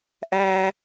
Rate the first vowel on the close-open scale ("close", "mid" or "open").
open